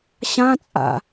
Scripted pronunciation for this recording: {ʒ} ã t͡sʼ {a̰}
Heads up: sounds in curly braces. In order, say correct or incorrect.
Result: incorrect, correct

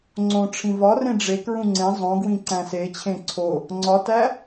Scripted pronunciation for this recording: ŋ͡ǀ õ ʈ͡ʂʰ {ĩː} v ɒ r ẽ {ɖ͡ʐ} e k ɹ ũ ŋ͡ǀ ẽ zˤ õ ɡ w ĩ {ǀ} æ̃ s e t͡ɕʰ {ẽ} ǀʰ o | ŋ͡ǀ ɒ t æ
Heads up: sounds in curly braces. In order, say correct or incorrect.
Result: incorrect, correct, correct, correct

